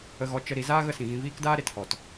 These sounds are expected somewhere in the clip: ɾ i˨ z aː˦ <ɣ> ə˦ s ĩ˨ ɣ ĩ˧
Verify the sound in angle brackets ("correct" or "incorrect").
correct